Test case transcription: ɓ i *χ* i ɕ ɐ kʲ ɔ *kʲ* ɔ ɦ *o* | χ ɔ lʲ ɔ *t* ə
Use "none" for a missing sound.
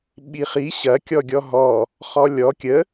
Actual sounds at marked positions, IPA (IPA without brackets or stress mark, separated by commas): χ, ɡʲ, ɔ, kʲ